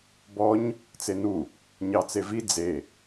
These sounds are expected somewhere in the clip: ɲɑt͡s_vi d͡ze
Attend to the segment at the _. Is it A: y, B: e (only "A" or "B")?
B